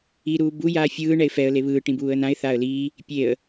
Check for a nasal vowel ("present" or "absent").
present